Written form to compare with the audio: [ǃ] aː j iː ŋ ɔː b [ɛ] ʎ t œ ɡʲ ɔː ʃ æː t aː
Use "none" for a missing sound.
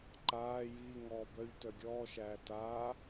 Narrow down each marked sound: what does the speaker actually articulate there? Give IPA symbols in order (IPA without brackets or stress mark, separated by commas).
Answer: ǃ, œ